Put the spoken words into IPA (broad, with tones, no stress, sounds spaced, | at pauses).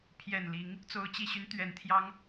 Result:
pʰ j ɛ˨˩ n l i˨˦ ŋ | t͡s o˨˦ ʊ̯ t͡ɕ i˨˩ ɕ y˦ n t̪ ɥ ɛ˨˦ n t̪ʰ j ɑ˦ ŋ